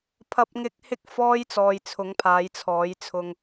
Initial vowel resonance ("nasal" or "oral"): oral